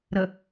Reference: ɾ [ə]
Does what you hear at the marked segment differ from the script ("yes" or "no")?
no